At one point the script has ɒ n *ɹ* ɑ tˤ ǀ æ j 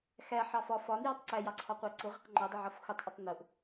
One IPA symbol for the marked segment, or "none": j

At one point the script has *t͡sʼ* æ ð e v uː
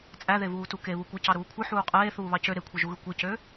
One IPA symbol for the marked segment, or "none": t͡sʼ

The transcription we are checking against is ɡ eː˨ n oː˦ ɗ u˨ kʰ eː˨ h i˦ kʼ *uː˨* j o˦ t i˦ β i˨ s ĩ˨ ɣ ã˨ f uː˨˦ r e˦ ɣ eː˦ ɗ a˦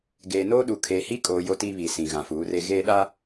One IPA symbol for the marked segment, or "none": oː˨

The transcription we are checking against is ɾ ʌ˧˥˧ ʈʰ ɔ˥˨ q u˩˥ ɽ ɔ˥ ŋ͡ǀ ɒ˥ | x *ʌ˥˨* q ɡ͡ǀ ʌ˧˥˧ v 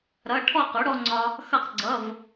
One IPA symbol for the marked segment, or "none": ʌ˥˨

